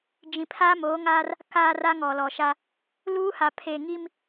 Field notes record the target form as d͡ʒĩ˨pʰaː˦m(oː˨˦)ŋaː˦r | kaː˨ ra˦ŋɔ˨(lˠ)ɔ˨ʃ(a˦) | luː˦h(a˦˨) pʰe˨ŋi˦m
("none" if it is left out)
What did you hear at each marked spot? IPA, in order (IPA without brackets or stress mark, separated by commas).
oː˨˦, l, a˦, a˨